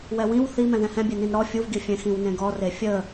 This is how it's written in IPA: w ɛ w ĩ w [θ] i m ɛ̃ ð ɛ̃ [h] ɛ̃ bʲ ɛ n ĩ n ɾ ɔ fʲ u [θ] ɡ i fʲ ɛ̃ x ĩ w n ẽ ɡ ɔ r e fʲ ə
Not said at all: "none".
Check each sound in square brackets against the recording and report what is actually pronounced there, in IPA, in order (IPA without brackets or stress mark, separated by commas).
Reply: θ, h, v